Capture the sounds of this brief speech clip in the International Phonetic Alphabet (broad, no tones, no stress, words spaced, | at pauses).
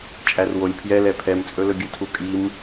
t͡ʃʼærwolʲ pʰjɛlɛ pʰɛmt͡sʼɵlɵɡʲɵ tʰukʼim